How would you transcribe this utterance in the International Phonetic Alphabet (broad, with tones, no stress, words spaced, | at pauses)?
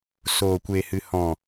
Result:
soː˨kʷe˨ hɨ˨hɔ̃˨